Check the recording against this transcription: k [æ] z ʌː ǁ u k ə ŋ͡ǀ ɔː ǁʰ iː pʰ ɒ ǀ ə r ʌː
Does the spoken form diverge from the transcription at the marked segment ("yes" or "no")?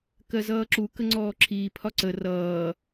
yes